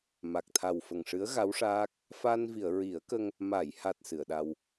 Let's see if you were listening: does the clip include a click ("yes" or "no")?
no